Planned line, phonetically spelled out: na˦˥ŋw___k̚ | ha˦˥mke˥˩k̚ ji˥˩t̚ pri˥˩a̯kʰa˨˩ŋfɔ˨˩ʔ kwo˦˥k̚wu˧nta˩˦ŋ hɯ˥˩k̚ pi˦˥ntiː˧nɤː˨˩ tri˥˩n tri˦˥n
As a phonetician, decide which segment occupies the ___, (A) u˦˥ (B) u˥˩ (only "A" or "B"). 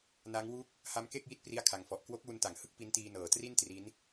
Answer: B